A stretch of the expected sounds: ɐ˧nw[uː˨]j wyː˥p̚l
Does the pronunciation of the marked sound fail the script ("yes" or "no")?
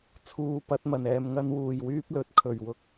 yes